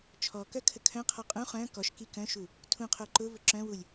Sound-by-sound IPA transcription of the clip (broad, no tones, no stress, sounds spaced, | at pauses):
t͡ʃʰ ɔ k œ kʰ ə kʰ œ̃ qʰ ɔ qʼ ũ χ œ̃ k ɔ ʃ k i k œ̃ ʃ u | tʰ ũ qʰ o ǃ ʊ v ə ǁ œ̃ w u lʲ